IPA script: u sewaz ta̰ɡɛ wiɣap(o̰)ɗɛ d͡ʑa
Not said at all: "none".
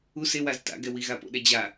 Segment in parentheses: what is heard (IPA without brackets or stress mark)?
o̰